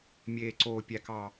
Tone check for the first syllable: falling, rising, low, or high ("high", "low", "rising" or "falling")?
low